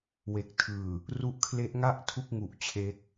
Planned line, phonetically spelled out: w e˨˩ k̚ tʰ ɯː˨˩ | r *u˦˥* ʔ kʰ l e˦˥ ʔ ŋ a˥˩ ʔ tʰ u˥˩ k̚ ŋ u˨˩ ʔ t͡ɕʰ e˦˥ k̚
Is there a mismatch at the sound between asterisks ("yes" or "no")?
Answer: no